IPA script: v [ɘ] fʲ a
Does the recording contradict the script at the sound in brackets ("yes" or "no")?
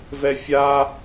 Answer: yes